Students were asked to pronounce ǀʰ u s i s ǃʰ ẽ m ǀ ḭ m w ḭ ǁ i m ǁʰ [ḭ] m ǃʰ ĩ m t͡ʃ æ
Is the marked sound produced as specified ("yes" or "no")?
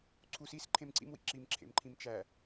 no